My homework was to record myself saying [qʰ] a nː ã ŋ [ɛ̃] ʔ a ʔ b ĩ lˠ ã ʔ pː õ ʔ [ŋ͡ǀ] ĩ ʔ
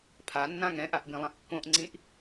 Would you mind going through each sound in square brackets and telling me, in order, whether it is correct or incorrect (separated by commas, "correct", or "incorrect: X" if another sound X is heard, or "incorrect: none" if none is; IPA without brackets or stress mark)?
incorrect: pʰ, correct, correct